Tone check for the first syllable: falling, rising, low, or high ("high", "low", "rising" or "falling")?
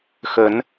rising